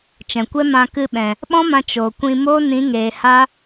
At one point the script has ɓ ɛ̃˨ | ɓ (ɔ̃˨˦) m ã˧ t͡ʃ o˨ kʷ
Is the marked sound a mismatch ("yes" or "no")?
yes